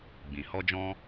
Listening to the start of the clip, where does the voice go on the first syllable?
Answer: low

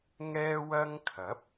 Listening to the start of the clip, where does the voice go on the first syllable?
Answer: high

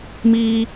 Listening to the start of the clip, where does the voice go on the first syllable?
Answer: high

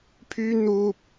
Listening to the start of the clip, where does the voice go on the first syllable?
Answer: high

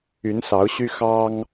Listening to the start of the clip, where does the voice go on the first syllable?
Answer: rising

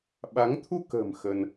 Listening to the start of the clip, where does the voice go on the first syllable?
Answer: rising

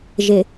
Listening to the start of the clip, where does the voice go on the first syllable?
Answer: low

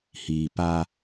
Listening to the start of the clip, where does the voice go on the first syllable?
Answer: low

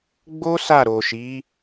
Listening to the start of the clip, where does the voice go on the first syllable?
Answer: high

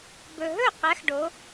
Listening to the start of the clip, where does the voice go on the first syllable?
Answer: low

